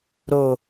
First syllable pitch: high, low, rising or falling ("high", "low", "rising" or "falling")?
low